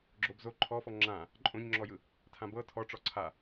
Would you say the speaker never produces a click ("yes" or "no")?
no